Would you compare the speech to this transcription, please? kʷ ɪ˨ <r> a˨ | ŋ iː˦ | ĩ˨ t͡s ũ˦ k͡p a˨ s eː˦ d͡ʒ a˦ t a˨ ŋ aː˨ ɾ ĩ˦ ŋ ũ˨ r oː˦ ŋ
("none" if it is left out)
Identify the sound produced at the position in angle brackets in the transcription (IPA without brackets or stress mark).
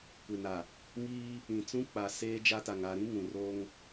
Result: n